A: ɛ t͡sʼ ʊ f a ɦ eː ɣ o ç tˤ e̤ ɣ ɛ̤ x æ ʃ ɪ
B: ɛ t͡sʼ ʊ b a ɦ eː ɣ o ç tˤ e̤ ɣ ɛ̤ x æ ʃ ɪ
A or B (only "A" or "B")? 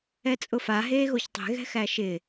A